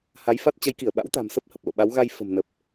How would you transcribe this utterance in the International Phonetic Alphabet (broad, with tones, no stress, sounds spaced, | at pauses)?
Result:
h a˨˦ j f a˦˥ t̚ t͡ɕ ə˨˦ j k i˧˩ ə̯ ɓ a̰˧˥ w t̪ a̤˨˩ m s ə˦˥ p̚ h ə˨˩ p̚ l o̰˧˨ ɓ a˨˦ w ɣ a˧ j f ə̤˨˩ m n ə˨˩ p̚